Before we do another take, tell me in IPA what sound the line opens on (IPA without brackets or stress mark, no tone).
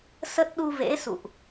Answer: s